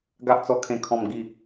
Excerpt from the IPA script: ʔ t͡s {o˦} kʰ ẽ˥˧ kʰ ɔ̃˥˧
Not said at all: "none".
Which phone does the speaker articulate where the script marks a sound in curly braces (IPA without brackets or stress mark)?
ɔ˦